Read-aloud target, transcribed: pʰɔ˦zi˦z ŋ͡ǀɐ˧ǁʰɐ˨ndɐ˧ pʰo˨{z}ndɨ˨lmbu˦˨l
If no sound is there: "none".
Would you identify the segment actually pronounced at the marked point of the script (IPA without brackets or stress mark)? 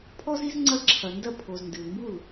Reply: z